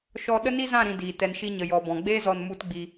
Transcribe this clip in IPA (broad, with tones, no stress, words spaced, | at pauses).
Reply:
ʃɔ˦ ɗə˦ni˦zã˦˨ɾĩ˨ diː˨ tɛ˨nʃi˧ɲə˨ jɔ˨bɔ̃˨ɡ͡beː˦ zɔ˦n mu˦tɡ͡bi˧